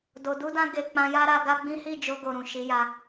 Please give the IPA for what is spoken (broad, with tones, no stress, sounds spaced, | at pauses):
d o˨ d u˧ d ã˧ ɡ e˨ k͡p ã˧ j a˦ ɾ a˧ ɡ a˦ ɡ͡b ĩ˦ h i˦˨ d͡ʒ o˧ ɡ o˨ ɾ ũ˨ ʃ i˨˦ j a˧